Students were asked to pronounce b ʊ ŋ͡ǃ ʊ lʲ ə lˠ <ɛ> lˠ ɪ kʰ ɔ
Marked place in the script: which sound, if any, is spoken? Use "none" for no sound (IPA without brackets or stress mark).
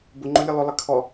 ʏ